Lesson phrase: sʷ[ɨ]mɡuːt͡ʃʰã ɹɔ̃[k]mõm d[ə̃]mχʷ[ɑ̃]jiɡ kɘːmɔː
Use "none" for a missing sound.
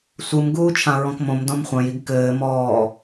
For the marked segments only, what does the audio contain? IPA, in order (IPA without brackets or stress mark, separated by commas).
ɨ, k, ɔ̃, ɐ̃